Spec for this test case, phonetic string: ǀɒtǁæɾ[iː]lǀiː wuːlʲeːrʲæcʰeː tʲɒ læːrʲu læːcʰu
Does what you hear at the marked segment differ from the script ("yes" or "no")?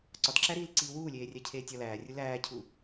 no